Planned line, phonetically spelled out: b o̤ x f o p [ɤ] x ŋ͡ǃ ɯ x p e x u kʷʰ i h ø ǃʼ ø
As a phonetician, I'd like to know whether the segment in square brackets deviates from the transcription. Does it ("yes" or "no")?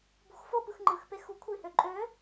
yes